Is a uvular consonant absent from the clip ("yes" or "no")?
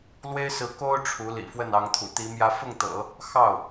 yes